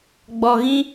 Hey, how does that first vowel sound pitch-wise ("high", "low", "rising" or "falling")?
low